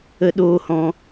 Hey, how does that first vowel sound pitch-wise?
low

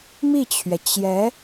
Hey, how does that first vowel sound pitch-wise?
falling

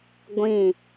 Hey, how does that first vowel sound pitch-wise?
falling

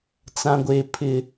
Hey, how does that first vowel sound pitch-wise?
low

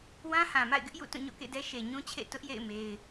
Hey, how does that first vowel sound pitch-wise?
high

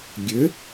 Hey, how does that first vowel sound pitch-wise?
rising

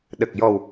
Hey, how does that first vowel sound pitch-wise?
low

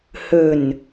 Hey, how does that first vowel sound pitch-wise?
low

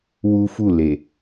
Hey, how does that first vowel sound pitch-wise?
high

